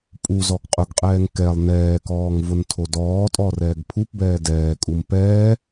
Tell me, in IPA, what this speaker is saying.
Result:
pʼu zɔɡqʼʊɡqʼɛːŋ kɛlˠ nɛːkɔːŋ vʊntʰodɔːtʼɔ rɛːɡpʰupbɛː dɛːkʼum pɛː

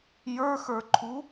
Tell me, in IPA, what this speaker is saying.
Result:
jə˞xə˞ǃʰu

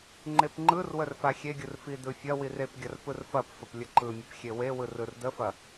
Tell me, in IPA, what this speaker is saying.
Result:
ŋ͡ǃepŋ͡ǃɯrwər faxʲeɡʲɯr fidɯfʲɐwir epɡʲɐr pɯrfɐpfəp lʲəǃɯmʲəp xʲewewɯr ɯrdəfɐ

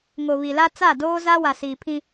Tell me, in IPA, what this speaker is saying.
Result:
ŋo˨βi˨la˦ t͡sa˦˨doː˦za˦wa˨ si˨pʰĩ˦

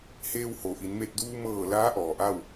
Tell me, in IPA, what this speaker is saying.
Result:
heː˧who˩ʔi˩˧n me˧˩t̚duː˧mɤː˧˩ laː˧˥ʔɔː˩ ʔa˥˨w

